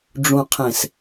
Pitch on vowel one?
low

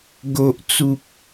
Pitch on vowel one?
low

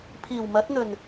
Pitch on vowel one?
low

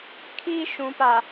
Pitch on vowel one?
high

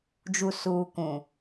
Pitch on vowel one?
low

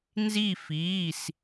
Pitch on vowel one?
falling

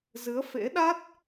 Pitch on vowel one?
rising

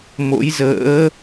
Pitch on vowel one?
rising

